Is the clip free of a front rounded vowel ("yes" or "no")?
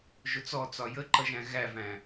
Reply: yes